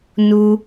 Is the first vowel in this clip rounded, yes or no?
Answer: yes